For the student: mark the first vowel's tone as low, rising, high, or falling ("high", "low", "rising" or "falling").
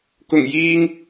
low